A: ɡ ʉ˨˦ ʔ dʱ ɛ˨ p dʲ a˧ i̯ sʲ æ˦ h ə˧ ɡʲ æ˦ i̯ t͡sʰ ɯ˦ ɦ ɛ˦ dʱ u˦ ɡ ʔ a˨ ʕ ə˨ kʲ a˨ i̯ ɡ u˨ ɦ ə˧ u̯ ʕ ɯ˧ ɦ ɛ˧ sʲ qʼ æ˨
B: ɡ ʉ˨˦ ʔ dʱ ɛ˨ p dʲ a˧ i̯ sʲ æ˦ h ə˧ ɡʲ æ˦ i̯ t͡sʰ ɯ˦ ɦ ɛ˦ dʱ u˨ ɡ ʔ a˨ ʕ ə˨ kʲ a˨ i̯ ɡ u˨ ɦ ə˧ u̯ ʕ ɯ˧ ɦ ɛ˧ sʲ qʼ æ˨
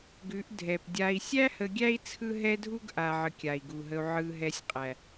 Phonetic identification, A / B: A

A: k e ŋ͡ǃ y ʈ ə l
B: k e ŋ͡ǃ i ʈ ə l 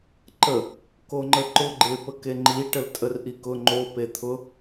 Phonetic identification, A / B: B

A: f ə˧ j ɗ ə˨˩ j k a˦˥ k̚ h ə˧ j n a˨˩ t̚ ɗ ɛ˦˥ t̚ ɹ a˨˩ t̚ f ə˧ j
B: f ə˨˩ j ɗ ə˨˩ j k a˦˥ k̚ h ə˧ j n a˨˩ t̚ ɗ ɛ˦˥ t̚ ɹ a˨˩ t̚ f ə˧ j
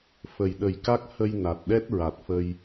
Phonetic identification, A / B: B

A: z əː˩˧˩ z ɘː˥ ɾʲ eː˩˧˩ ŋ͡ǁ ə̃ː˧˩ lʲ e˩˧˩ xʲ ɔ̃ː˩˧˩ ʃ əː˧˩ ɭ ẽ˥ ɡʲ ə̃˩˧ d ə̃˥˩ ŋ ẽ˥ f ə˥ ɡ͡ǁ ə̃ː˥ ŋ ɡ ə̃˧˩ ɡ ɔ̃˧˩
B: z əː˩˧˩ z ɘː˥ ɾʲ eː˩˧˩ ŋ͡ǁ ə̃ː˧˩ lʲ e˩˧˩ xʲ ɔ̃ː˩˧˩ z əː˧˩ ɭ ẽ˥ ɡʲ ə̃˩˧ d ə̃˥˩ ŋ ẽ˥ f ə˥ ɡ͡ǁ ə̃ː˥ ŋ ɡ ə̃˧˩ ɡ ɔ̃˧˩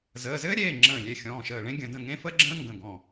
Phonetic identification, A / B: A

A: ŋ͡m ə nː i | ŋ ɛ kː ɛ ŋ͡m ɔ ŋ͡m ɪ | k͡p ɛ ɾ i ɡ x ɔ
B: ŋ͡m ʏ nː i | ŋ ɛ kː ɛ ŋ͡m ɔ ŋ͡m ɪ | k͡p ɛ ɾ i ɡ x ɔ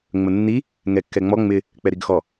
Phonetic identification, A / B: A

